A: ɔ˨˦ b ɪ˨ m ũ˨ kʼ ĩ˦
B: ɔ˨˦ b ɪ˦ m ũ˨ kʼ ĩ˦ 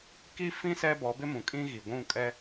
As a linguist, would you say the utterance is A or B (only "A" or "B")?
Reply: B